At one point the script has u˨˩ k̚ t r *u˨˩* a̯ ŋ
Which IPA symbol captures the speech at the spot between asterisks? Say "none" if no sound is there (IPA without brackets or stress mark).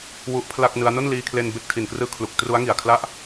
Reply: u˦˥